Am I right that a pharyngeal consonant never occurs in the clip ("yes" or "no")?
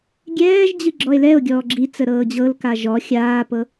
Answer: yes